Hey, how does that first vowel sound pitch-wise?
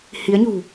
rising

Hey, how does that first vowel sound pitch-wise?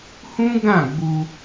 high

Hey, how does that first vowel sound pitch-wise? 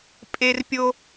high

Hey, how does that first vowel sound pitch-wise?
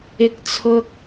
high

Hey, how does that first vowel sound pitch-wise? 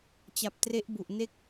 low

